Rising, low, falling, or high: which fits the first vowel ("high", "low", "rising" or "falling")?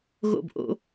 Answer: falling